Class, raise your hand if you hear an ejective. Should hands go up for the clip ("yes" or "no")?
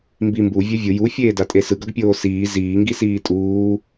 yes